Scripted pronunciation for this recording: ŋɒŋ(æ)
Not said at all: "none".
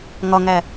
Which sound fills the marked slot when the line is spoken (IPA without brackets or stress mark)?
æ